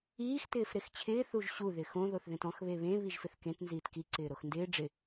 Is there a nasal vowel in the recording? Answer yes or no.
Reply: yes